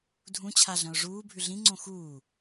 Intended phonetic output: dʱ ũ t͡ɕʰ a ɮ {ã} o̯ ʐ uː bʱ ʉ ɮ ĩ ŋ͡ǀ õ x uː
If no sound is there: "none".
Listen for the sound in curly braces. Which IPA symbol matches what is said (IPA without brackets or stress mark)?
ɐ̃